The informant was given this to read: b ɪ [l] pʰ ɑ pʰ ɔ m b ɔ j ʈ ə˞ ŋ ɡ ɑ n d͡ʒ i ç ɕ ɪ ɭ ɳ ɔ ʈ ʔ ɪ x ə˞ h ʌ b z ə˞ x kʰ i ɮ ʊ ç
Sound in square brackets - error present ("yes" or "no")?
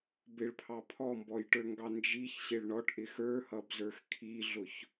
yes